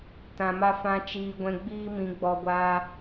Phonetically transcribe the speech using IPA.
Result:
t ã˧ m a˦ f ã˦ t͡ʃ iː˧ ɡʷ ɛ̃˧ ɡ͡b iː˦ m ĩ˧ ɡ͡b ɔ˧ ɡʷ aː˧

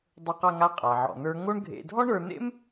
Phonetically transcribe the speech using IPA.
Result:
dˤ ə˞˧ q a˧ ŋ a˧ qʼ æ˩ ʕ ɔ̰˩ n̪ ə˞˧ ŋ o˥ ɳ ɡʱ ḛ˧ dʱ ɔ˥ ɳ ə˞˧ n̪ ḛ˥ m

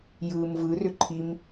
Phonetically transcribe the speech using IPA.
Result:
j ɯː m v ɯ r ʏ ǃʰ i m

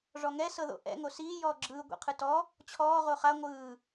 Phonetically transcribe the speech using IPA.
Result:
ʐ ɔ ŋ ɛ s ɤ ð o̰ ʔ ɛ̰ ŋ o s iː j ɔː ɡ͡ǁ ɯː ɡʷ ɛ̰ qʰ ɯ t ɔ | t͡ɕʰ ɔː ʁ o χ a ŋʷ ɯː

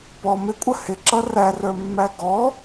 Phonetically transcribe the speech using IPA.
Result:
p ɔ m ɪ kʷʼ ə h ɪ ǁ ʌ r æ r ə˞ mː æ ɡ ɔ

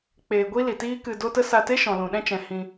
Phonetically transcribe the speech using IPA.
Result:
k͡p eː˧ ɡʷ i˦ l i˨ t iː˦ k ɨ˧ d o˦ t ə˦ s a˧ t e˦ ʃ ɔ̃˨ l ũ˨ ɗ ɛ̃˦ t͡ʃ ɛ̃˨ h ĩ˧

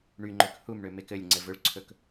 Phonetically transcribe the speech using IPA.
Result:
ɳ y ŋ͡ǃ ø k h u m ɳ ø m e k ɘ lʲ ŋ͡ǀ ɘ v ɵ ɭ ǀʰ ɵ k

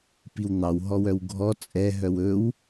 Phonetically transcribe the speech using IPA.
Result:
p i w n̪ ɑ w ɦ ɔ w œ w ɡʱ ɔ t͡sʼ ɛ ɦ œ w ɵ w

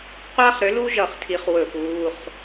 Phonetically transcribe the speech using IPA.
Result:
qʷ aː˥ χ ɾ ʏ˨˥ l u˥ ʒ ʌ˧˩˧ χ tʰ i˨˥ χ w ɵ˧˩˧ p uː˩˧˩ χ

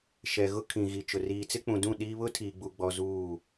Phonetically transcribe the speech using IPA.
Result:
ʃ ɛ˨ ɣ ʊ˦ kʰ ĩ˨ ɣ i˨ t͡ʃ ʊ˨ r iː˨ t͡s ɪ˦ k͡p ũ˨ d ũ˦˨ ɗ iː˦ β ʊ˦ tʰ iː˨ ɡ͡b u˨ ɡ͡b ɔ˨ z uː˦˨

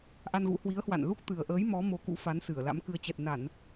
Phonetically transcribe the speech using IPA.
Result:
ʔ a˧ n ɣ ṵ˧˥ h w i˨˦ ə̯ h w a̰˧˨ n l u˦˥ k̚ t̪ ɨ˨˩ ə̯ ʔ əː˨˦ j m ɔ˨˦ m o˨˦ k ṵ˧˥ f a˨˦ n s ɨ˧˩ ə̯ l a̰˧˥ m k ɨ˧ ə̯ t͡ɕ ɛ˨˩ t̚ n a˧˩˨ n

